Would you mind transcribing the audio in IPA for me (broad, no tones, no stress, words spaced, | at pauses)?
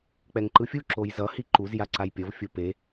k͡pɛŋǃɯfʲu ǁojzʌ hiǃuz jaǀajpʲʌv fʲope